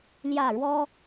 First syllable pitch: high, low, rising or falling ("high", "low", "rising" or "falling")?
falling